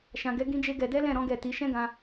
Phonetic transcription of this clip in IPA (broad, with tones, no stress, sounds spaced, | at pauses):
ʃ ã˨ ɡ ɛ˨˦ ɡ ĩ˦ d͡ʒ e˦ ɡ ɛ˧ d ɛ˦ l ɛ̃˦˨ ɾ ɔ̃˨˦ ɡ ɛ˦˨ t i˨˦ ʃ ɛ̃˦ ɡ ã˧